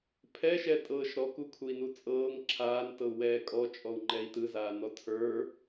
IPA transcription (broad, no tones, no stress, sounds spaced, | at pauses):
pʰ ɛ ʃ ɛ tʼ ɤː ʃ ɾ ɔ k u kʰ u i̯ n u t͡sʼ ɤː ŋ ǁʰ aː n t ɤ u̯ w ɛː kʼ ɔ t͡ʃʼ ɔ u̯ ŋ͡ǃ ɛ i̯ t ɯ z aː n ɔ tʰ ə˞